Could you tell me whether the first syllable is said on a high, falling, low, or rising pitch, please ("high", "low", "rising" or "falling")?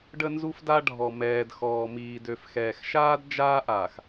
high